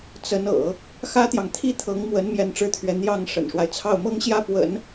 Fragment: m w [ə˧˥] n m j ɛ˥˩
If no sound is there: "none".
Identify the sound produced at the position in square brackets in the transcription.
ə˧˥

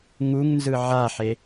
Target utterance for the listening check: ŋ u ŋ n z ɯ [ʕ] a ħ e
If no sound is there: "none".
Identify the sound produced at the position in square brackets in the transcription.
ʕ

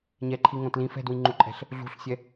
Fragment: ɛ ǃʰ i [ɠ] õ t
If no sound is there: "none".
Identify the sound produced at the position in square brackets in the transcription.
ŋ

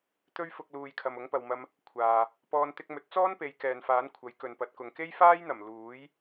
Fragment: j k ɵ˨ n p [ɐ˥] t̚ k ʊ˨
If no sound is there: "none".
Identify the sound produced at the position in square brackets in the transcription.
ɐ˨˥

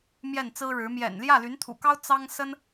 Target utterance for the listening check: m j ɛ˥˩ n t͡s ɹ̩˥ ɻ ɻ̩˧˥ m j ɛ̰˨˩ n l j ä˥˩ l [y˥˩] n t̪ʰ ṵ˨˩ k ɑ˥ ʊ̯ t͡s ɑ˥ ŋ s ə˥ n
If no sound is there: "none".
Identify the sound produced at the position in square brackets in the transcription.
y˧˥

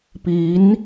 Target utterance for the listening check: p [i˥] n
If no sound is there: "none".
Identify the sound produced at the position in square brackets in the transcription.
i˧˥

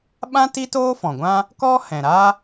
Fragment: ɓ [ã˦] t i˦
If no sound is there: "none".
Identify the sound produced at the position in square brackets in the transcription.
ã˦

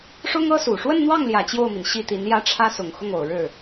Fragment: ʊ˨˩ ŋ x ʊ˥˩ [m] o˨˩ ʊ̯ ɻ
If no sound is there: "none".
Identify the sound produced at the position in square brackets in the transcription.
ŋ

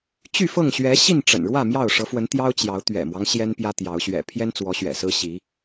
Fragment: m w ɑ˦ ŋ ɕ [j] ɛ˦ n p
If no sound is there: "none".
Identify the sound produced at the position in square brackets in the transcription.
j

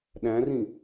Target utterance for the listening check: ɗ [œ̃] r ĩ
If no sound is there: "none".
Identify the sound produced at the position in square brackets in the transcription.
æ̃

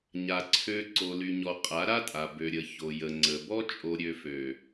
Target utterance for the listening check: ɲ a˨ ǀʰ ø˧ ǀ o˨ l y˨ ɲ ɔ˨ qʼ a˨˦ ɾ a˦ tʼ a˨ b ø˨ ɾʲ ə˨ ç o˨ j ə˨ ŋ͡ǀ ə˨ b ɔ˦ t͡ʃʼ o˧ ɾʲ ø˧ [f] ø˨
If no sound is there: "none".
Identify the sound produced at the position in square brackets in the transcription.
f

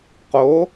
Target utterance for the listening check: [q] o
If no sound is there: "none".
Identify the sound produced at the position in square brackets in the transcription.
q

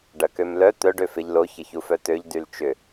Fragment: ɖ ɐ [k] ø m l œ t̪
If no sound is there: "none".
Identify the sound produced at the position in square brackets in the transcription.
k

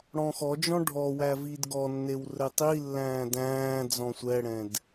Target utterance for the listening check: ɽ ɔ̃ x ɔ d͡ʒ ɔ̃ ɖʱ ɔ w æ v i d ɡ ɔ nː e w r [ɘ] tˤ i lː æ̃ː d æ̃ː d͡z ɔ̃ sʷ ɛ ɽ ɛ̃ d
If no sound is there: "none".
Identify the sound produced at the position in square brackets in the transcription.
ɘ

